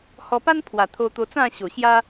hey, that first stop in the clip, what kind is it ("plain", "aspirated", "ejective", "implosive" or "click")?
plain